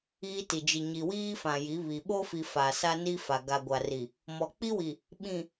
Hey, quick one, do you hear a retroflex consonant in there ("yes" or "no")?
no